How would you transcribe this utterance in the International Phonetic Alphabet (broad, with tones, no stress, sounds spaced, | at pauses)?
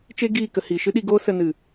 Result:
t͡ʃ e˦ ɡ iː˦˨ k ə˧ h i˨ ʃ ɨ˦ ɗ i˧ ɡ oː˦ s ə˧ n ɨ˨